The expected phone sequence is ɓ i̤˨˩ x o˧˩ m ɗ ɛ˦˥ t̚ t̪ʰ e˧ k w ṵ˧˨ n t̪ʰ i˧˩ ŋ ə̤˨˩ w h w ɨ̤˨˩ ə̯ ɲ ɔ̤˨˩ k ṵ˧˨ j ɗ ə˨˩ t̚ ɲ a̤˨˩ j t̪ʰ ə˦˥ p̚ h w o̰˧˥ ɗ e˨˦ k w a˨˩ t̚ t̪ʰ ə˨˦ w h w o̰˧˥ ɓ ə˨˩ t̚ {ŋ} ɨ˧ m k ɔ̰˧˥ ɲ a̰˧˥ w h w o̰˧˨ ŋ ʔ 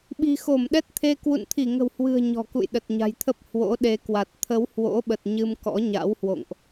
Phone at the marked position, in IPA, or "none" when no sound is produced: ɲ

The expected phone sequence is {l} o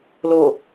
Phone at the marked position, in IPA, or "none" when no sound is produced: l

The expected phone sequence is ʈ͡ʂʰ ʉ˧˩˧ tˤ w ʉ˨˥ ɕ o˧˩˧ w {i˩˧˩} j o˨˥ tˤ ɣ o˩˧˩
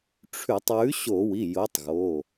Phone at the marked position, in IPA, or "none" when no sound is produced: i˩˧˩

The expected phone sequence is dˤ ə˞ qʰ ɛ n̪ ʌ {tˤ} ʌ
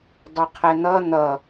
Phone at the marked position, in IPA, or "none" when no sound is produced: n̪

